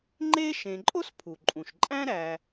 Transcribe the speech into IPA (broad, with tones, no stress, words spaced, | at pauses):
ŋ͡ǃe˥ ʃẽ˨ǃʼo˥spʰu˩ǃʼũ˩ʃ ǃʼæ̃˥ ɾæ˨